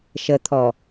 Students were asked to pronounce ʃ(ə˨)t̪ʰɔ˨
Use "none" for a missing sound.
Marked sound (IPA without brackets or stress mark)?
ə˨